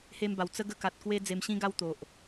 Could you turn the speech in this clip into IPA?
h e˧ m b a˨˩ w t͡s ə˦ ɡ ə˥˧ k a˨ t̚ k w e˦ d͡z e˧ m ɕ ĩ˦ ɡ a˥˧ w t̪ o˨ ʔ

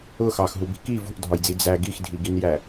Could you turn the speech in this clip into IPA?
ʊ x ɑ x ɦ u b i̤ k i v ṳ ʔ dʱ ɒ j d͡z i d͡z æ ɡ i x dʱ i ɡ i n j æ

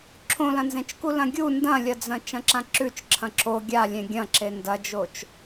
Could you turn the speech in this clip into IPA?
ǁʰ õ l ɐ̃ n z ẽ t͡ʃ k u l ɐ̃ ɡʲ u n d ɐ̃ lʲ ɐ d͡z ɐ̃ t͡ʃ ɐ̃ ǁ ã ǁ ʉ t͡ʃ ǁʰ ɐ̃ ǁ o ɡʲ a lʲ ẽ ɡʲ ɐ̃ ǁ e n d ɐ d͡ʒ o t͡ʃ

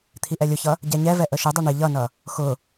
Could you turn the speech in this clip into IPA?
t̪ʰ i ʔ ɛ lʲ ʊ ç ʌ | ɟ ɛ ɲ ɛ v ɛ ʔ ə ʃ ɪ dˤ ʌ ɳ ɪ ʎ ʌ n ʌ | x ʊ

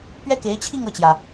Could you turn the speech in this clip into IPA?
p ɥ ɛ˥ k e˧˥ ɪ̯ t͡ɕʰ i˥˧ ŋ ɤ˥˩ t͡ɕ j ä˩

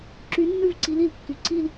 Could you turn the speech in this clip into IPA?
ǁ y˨˦ nː ʉ˦˨ v ǀ i˨˦ l i˩ l kː y˩ ǀ i˦˨ l

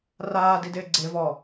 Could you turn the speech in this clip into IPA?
r aː d i d ɪː ɡ͡ǀ e v ɔ

